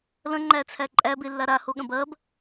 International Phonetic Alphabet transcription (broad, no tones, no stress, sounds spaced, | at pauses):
l ɐ̃ ŋ͡ǃ æ t͡sʰ æ ǃʼ æ b e lː a ɾ a h o ɠ ɐ̃ b ɐ b